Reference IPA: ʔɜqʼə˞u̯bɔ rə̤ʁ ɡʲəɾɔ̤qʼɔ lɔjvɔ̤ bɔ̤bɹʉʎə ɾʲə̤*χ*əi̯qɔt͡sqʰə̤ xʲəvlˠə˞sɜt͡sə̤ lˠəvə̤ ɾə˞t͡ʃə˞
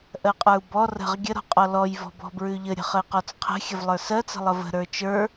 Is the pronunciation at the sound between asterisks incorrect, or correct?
correct